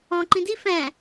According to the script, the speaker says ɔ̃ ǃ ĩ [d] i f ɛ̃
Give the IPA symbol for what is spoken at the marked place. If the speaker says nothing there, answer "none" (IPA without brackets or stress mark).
d